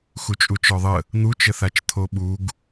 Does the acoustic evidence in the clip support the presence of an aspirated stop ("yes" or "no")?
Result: yes